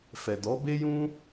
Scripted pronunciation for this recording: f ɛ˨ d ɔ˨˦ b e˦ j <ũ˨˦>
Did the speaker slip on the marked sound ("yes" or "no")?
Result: yes